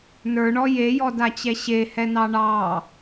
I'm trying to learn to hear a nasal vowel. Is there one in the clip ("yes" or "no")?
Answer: no